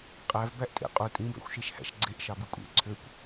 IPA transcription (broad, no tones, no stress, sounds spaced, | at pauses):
qʼ æ v b æ ʔ tʼ ḛ qʼ u tʼ ĩ b æ̰ xʷ ʃ e ʃ h æ̰ ʃ ɡ͡ǀ e ʔ ʃ ɑ b i kʷʼ ḛ ǀʰ ø kʷ